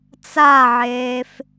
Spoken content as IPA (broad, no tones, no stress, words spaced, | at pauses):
t͡saʕeːf